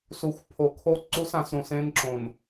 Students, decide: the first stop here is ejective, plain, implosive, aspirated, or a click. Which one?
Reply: aspirated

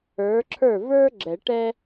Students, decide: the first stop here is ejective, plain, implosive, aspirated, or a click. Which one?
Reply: click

